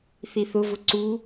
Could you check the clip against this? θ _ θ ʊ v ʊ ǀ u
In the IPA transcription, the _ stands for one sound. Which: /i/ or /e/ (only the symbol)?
i